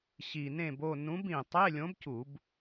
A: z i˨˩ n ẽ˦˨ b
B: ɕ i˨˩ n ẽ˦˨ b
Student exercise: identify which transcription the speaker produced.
B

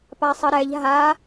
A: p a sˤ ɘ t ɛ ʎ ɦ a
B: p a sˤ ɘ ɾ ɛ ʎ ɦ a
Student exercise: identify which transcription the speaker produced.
B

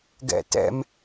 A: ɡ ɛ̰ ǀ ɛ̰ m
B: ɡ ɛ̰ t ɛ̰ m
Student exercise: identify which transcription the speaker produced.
B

